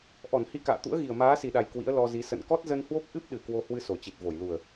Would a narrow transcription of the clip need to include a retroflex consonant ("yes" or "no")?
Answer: no